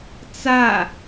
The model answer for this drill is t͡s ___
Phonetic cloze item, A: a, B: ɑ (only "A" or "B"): A